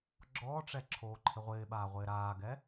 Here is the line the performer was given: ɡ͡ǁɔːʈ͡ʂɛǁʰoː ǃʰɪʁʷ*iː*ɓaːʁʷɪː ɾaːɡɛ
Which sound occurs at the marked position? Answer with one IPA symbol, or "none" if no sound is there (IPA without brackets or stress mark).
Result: ɪː